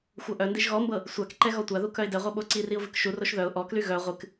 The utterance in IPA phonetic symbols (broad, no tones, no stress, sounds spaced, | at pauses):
xʷ ɤ ʔ œ n d i ʒ ɣ ɔ m b ɤ | sʷ a k ǃ ɛ ɣ ɔ tʷ a ð u k œ ɪ̯ d ɛ ʁʷ ɤ ɓ o ǀ i r i ʊ̯ v ɨ k ʃ u r o ʃ ð œ ʊ̯ ʔ ɔ k l y ɣ œ ʁʷ ɨ k